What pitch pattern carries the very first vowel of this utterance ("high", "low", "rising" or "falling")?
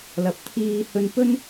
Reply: low